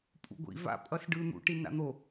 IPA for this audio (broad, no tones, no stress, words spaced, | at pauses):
pʼṵɡʷḭ va̰ pʼʌsɖɯ n̪ṵ ʈina̰n̪o